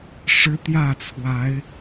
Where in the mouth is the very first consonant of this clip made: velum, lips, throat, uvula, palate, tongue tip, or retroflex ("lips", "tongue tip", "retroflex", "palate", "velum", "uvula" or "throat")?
retroflex